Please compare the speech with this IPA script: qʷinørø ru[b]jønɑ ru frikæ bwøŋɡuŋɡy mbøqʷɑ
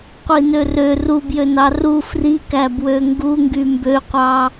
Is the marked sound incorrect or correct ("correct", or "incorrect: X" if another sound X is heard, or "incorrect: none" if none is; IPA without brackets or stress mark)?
correct